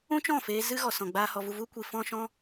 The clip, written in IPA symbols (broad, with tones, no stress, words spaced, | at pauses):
ũ˦t͡ʃɔ̃˦˨feː˧ zɨ˦ ɣɔ˧sɔ̃˧ɡ͡baː˦ hɔ˧vu˧vu˦kʷi˧ fɔ̃˦ʃɔ̃˦